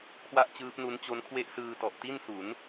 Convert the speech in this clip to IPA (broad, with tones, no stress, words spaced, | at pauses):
kʰwa˥˩ʔt͡ɕɯː˦˥p̚nu˦˥nt͡ɕo˦˥n kʰwe˥˩ʔsɯː˧tɔ˨˩ʔ ti˥˩nsu˩˦n